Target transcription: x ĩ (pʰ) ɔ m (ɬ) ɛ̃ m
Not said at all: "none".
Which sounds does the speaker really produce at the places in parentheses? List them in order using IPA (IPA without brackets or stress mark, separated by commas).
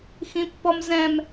pː, z